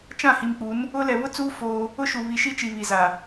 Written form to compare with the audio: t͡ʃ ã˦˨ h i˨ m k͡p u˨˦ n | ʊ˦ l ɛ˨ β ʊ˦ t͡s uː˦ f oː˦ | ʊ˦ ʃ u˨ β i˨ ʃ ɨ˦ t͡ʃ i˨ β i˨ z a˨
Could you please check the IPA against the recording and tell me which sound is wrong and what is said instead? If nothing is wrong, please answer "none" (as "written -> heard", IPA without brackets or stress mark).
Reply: ɨ˦ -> i˦